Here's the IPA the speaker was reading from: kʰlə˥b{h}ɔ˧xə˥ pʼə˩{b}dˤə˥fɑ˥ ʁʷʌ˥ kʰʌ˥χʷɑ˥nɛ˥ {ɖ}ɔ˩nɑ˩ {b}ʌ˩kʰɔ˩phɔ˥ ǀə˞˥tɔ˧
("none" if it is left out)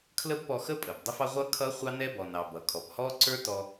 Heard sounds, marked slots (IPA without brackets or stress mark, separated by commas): p, b, b, b